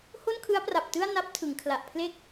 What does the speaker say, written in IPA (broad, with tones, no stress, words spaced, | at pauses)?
ho˥˩nkʰɯ˦˥a̯pra˨˩p̚ tɯ˥˩a̯na˦˥p̚tʰɯ˩˦ŋ kʰla˨˩ʔpʰle˥˩k̚